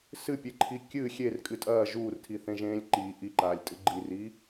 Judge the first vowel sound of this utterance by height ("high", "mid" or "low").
high